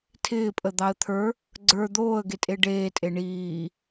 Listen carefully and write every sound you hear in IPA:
tʰ ɪː pʼ ə d̪ ɑ ə̯ t̪ʰ ə˞ | ɡ͡ǀ ə˞ d̪ oː ə̯ ɡ e tʼ e ɖ eː tʼ e ɳ iː

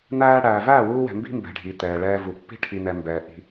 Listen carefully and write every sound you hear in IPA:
n̪ æː˧ ɽ æː˨ v æː˦˨ w uː˧ w ɛ̤˨ m b i̤˦ m b ɛ̤˨ ɖʱ i˨ t̪ ɛː˨ ɭ ɛː˧ v u˨ pː i̤˦ ʈʰ i˨ n ɛ˨ m b ɛː˨ ʔ i̤˧

